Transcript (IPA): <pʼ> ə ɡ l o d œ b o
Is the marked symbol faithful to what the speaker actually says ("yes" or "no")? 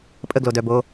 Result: yes